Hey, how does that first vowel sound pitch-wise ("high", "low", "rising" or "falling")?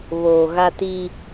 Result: low